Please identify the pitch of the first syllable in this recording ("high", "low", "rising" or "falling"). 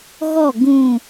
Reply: falling